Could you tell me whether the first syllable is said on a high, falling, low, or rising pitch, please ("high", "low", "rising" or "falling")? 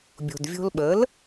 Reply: low